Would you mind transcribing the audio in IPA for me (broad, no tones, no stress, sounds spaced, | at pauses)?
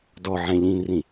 d ɔ ʕ ɛ̃ ʎ ĩː n r ĩ